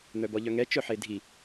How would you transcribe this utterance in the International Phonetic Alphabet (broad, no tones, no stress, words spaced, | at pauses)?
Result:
n̪œbɔʎœŋɛ t͡ʃœħedʱi